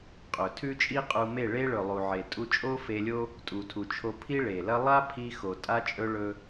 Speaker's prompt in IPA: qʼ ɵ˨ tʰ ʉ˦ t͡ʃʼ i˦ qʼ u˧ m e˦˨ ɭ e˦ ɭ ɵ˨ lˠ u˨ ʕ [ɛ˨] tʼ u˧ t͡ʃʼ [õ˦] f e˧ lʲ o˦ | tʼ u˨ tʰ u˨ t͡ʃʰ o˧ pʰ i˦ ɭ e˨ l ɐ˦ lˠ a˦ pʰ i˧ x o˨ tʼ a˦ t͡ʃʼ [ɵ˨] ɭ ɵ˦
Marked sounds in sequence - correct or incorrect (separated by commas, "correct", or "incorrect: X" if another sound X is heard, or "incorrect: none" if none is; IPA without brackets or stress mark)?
incorrect: e˨, incorrect: o˦, incorrect: ɵ˦